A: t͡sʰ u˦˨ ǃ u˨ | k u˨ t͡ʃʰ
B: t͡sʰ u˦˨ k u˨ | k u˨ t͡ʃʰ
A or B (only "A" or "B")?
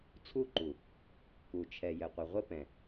A